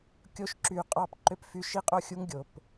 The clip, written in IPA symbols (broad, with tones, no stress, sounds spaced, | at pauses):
kʲ o˥ ʃ ǁ y˧ qʼ ɑ˥ p ǃ ø˥ p f y˥ ʃ i˥ qʼ o˥ xʲ u˥ ŋ ɡʲ o˩ p